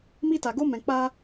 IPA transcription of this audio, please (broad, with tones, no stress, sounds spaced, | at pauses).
m i˧ t a˨ ɡ o˧ m ɛ̃˨ k͡p a˧